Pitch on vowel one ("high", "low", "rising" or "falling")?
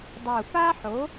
low